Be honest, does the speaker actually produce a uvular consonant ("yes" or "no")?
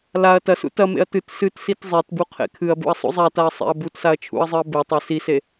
yes